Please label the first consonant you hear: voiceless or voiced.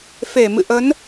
voiceless